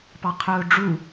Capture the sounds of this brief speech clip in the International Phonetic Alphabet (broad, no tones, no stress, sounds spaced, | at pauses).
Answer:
p ɑ qʰ ʊː ɖ͡ʐ u